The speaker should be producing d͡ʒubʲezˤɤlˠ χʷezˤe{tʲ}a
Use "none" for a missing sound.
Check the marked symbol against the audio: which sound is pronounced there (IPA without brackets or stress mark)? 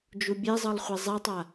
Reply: tˤ